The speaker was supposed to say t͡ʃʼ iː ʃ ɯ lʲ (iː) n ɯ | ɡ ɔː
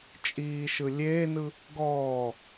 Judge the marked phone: incorrect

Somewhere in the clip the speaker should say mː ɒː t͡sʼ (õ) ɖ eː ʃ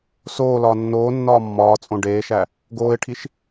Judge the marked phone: correct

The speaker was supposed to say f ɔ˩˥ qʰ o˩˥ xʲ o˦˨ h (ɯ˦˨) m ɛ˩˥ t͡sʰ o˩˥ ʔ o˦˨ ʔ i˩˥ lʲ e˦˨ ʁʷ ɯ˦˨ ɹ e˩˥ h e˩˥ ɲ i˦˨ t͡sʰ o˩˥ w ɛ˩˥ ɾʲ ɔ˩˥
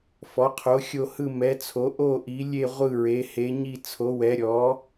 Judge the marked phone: correct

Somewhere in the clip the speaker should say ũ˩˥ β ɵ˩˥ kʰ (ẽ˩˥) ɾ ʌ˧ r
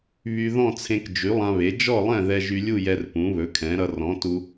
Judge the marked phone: incorrect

